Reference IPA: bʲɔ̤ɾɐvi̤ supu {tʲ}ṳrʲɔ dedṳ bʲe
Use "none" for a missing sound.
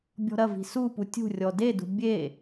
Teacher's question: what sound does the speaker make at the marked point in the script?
tʲ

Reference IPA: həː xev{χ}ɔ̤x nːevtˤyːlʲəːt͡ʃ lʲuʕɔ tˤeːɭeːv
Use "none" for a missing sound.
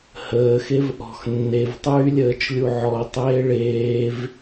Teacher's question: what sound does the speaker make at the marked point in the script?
ʔ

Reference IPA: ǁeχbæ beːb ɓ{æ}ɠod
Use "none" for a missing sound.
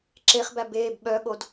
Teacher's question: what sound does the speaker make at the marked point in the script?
œ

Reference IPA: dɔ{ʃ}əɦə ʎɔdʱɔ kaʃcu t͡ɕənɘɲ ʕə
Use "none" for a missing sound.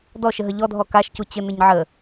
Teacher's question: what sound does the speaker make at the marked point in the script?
ʃ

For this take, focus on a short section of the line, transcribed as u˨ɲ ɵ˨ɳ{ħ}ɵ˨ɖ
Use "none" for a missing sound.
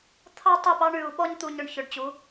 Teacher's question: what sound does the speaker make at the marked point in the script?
ç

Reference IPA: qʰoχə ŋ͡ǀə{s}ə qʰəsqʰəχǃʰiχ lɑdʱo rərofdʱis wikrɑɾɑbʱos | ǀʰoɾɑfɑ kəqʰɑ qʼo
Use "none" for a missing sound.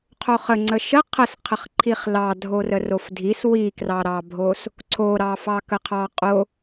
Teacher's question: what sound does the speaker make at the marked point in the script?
ʃ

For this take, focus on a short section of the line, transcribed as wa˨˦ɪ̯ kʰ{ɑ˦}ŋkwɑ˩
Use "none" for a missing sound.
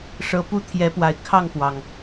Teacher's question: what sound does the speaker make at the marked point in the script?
ɑ˥˨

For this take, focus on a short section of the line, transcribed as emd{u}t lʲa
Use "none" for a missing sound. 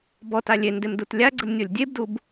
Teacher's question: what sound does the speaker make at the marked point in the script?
u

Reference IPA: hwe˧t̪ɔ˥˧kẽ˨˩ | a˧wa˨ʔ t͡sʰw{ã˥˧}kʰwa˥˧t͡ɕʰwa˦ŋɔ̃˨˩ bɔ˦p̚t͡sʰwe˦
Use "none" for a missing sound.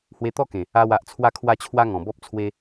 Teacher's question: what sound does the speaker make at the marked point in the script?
a˥˧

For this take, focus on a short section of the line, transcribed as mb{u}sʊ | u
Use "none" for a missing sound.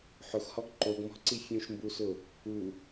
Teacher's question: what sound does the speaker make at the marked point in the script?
u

